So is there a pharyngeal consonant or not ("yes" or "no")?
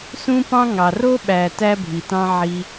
yes